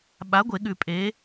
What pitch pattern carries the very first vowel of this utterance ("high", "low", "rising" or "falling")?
rising